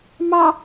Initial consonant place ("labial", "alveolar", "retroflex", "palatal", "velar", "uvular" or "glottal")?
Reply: labial